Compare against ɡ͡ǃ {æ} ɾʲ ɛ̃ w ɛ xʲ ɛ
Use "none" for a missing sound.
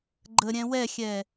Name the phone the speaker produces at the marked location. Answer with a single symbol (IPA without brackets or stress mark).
ə